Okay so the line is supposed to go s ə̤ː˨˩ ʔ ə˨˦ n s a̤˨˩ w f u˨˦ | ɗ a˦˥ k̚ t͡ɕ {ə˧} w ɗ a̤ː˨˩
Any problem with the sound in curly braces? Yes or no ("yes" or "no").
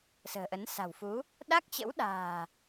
yes